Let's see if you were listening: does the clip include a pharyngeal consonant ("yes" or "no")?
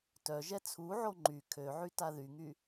yes